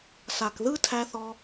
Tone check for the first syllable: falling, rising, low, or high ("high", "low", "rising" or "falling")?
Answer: low